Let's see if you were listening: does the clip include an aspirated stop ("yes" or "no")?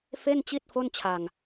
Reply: yes